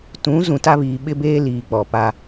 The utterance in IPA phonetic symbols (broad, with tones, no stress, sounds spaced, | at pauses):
t ũ˨˦ z ũ˨ t a˦ β iː˨ ɓ ɪ˦ b eː˦ l iː˨ k͡p ɔ˨ p a˦